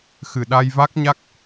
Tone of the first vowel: low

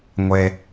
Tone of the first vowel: low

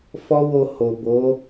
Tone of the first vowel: high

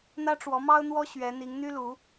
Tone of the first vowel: high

